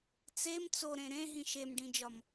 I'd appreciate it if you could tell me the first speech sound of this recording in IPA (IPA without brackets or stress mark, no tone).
t͡s